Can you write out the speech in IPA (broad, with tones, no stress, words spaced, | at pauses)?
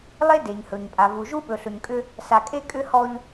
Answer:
lˠe˦ de˨ɲhɵ˨ɲpʼa˨ vu˨ʒu˦ɓɵ˨ ɬɵ˨ɲkʼʏ˦ | sa˨kʼe˦ kʼʏ˦hɔ˦ʎ